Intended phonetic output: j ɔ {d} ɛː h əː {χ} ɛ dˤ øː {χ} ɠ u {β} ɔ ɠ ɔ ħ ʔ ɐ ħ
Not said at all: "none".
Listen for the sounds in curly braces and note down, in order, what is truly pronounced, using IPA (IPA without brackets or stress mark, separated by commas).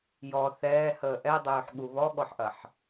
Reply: θ, ʔ, ħ, β